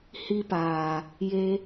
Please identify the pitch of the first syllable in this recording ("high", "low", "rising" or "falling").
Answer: high